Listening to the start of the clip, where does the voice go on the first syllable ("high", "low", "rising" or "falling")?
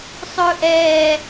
high